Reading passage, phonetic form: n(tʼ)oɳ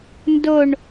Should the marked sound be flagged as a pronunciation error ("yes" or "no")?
yes